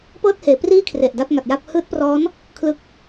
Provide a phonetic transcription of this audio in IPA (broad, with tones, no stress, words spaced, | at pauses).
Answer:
pɤː˥˩t̚heː˩˦priː˥˩ kʰre˨˩ʔda˥˩p̚ŋa˨˩t̚ja˥˩p̚ hɯː˦˥t̚prɔː˦˥n | kʰlɯ˦˥k̚